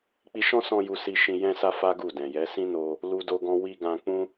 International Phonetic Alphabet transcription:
k͡pi˧ʃɔ̃˦sɔ̃˧ ju˧si˧ʃĩ˧ jɛ̃˧sa˧ fa˦ɡu˦˨dɛ̃˨jɛ˨˦ sĩ˦no˧ | lu˦do˦ɡɔ̃˦ wi˧ɡã˧k͡pũ˦

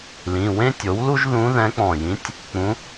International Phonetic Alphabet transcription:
lĩ˩˧˩wẽ˥tʲo˩˥wlu˥ʒ ðũ˧˥ðɛ̃˧˥k͡pɔ̃˧˩jĩ˧˥tʲ | k͡pũ˧˥

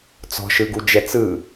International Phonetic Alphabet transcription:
t͡sɔ̤ʃɯɡud͡ʒɛ t͡sɯ

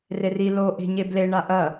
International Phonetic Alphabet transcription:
reri lo ʔe̤ɲeble ɳaʔɐ

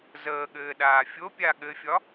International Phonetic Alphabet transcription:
zəːɠɘːɗaː fʲopʲa ɠɘfʲɒ

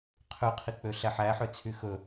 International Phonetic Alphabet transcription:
qʰøqʰik͡pø ɬæħæħøt͡sʰy xɵ

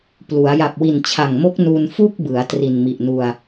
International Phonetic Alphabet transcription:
plu˩˦a̯ ja˨˩p̚wi˨˩nt͡ɕʰa˨˩ŋmo˦˥k̚ nu˧nfu˥˩k̚bɯ˩˦a̯ tri˨˩nmi˨˩ʔnu˧a̯

